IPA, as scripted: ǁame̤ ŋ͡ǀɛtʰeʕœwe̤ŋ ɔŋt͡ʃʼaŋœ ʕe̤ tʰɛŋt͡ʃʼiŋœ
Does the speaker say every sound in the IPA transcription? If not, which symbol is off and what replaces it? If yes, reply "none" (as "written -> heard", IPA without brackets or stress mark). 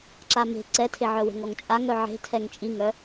ŋ͡ǀ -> ǀ